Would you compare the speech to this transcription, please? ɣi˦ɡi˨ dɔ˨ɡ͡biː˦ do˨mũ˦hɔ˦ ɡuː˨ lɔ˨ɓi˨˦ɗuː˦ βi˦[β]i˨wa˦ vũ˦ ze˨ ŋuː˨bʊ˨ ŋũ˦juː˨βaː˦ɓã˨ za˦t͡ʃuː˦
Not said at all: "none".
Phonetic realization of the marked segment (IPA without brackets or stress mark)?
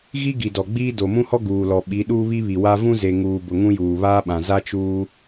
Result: β